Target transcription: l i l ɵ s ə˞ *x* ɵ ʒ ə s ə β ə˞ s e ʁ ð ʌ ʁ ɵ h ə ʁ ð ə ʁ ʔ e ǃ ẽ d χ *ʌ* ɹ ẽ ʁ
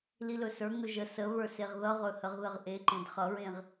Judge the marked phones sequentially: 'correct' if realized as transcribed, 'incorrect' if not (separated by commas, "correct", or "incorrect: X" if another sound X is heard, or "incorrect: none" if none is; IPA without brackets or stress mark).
incorrect: ŋ, correct